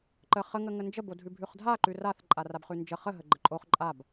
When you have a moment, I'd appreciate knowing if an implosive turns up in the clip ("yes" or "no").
no